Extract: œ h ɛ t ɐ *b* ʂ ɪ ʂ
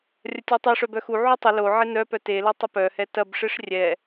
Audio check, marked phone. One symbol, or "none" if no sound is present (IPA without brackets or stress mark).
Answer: b